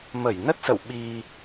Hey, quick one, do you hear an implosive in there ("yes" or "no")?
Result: yes